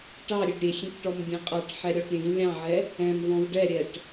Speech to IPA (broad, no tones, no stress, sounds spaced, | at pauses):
ʈ ɑ ɾʲ e ɖ ɾʲ e xʲ ẽ k ʈ ɔ m dʲ ɛ̃ qʼ ɑ ʈ ħ ɛ ɾʲ ɔ ʈ ɾʲ ẽ v lʲ ɑ̃ ʕ ɛ | ɛ̃ m v ɔ̃ v ɖ ɛ ɾʲ ɛ ʈ